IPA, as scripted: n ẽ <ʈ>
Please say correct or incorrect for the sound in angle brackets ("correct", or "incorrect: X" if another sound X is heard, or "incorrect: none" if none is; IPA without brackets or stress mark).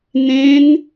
incorrect: n